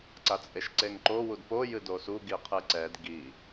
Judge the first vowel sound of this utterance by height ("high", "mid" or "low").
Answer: low